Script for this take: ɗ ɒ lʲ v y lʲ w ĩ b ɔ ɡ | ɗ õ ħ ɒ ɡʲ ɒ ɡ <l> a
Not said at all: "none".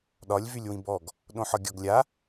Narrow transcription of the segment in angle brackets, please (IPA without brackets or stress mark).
lʲ